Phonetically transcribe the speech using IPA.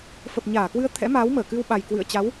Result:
f ə˨˩ p̚ ɲ aː˧˩ k w ɨ˧ ə̯ t̪ʰ ɛ̰˧˥ m aː˨˦ w m əː˧˩ k ɨ˧ w ɓ a˨˩ j k w ɨ̰˧˨ ə̯ t͡ɕ a˨˦ w

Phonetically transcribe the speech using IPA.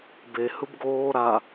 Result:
b e h ɯ b ɡ oː ɾ a

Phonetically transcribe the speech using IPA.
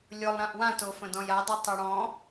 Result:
lʲ ʊ lˠ ɾ ã ʔ w ã t o f ə̃ d ɔ̃ j a dˤ o tˤ ɯ ɽ ɔ̃

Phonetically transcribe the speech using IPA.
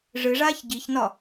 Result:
ʐ ɨ ʐ aː ç ɟ i ç n ɒ

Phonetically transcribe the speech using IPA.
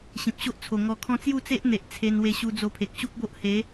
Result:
ɕ ĩ˨ p̚ ɕ o˦ ʔ t͡sʰ o˨˩ ŋ ɔ˧ kʰ ɔ̃˦ t͡s j u˥˧ t͡s e˦ ʔ n̪ e˨ ʔ t͡sʰ e˧ n w e˧ ɕ u˧ d͡z o˧ pʰ e˨ k̚ ɕ u˦ k̚ b o˦ ʔ h e˨˦

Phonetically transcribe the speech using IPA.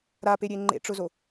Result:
ɾ a p e ɾʲ e ŋ͡ǃ ḛ ʈ͡ʂ ʊ z o

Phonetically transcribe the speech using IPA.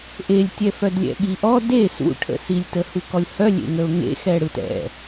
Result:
ʔ e lʲ tʲ ɛ f œ d lʲ ɛ̰ ɠ i ʔ ɔ d e s ṵ ʈʰ ə̰ s i lʲ t ə h u k ɔ lʲ h œ lʲ ḛ ŋ ə ʊ̯ ŋ ḛ x ɛ ɽ ɯ t ɛ̰

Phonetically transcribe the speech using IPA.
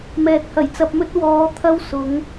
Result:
m ɛː˨ t̚ h ɐ˨˩ j t͡s ɐ˧ p̚ m ɵ˥ t̚ w ɔː˨˧ t̪ʰ ɐ˥ w s ʊ˨˧ ŋ

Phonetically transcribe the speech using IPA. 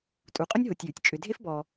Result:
tʼ u˨ qʼ ʊ˥ nʲ ɦ o˨ tʲ j ʉ˩ tʲ t͡ʃʼ ʏ˨ dʱ e˥ f b ɔ˨

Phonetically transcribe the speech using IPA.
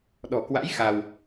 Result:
ɗ ɔ̤˨˩ k w a̰˧˥ j x a˧ w

